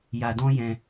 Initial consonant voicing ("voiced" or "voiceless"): voiced